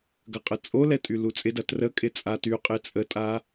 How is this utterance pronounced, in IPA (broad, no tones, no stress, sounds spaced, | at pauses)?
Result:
ɡ ɐ qʼ ə t͡sʼ o l ɛ tʼ y l u t͡sʼ ɪ d ɐ t r ə kʼ ɪ t͡sʼ a t y qʼ ɪ t͡sʼ ə tʼ a